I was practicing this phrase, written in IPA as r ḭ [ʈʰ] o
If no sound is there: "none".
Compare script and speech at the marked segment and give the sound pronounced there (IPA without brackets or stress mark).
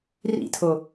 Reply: tʰ